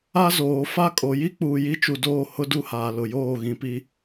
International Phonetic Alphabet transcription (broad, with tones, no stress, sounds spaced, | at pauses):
a˦ z oː˨ f a˦ kʼ o˨ j i˦ k͡p uː˨ j i˦ t͡ʃ u˨ d oː˦˨ h ʊ˦ d u˦ h aː˨ l ʊ˨ j oː˦˨ ɣ ĩ˨ p i˦